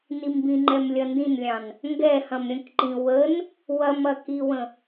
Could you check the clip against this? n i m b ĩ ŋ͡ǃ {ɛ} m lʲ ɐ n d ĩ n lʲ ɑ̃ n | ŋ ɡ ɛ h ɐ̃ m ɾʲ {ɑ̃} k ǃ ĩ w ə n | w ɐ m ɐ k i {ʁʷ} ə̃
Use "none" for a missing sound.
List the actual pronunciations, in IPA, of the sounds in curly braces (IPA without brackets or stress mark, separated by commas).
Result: ɛ, ə̃, w